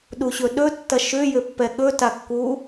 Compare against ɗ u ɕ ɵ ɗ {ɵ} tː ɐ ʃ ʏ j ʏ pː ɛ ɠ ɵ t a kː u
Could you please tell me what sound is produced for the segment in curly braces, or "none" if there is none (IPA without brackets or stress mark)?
ɵ